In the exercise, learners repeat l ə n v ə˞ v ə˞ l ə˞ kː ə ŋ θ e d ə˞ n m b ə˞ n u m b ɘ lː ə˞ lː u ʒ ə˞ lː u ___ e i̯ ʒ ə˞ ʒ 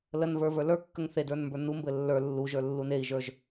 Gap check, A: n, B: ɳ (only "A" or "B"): A